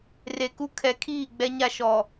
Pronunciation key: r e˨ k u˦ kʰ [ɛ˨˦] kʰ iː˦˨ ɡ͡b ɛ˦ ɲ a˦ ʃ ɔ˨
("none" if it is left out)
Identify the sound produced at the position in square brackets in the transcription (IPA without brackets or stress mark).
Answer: ɛ˨˦